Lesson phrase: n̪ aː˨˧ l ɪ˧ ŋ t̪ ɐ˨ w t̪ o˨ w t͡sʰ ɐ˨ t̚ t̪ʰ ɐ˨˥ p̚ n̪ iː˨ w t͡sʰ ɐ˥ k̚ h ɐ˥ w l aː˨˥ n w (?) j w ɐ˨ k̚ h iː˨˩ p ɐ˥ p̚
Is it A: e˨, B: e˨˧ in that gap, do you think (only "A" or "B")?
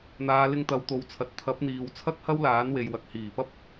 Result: A